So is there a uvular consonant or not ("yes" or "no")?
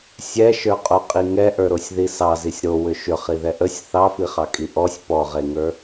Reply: yes